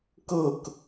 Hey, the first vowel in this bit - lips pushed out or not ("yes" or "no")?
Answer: no